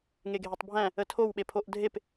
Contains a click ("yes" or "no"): no